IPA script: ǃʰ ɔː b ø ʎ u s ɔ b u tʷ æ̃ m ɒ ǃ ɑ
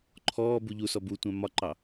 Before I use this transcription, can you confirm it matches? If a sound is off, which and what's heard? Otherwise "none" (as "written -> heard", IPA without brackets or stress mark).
ø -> u